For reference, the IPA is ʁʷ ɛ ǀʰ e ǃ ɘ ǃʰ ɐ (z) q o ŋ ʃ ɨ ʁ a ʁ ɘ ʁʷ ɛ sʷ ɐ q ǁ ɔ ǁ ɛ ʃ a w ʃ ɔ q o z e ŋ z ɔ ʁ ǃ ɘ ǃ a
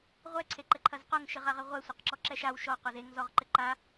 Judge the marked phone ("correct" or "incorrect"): correct